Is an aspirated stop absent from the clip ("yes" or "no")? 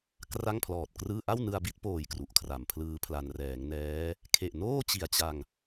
no